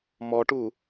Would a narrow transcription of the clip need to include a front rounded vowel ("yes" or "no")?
no